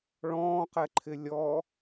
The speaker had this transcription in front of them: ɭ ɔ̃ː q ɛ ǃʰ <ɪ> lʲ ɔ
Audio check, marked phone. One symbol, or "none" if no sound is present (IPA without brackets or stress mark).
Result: ɪ